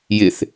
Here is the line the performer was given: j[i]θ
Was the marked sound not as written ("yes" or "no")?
yes